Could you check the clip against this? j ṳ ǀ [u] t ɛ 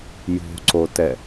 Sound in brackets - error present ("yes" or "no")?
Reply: yes